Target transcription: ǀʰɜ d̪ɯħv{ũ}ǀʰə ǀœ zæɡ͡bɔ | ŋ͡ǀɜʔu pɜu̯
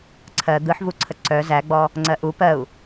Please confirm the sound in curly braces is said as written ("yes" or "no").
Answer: no